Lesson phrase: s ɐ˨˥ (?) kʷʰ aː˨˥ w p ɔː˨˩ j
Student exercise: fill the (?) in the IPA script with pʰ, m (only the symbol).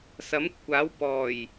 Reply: m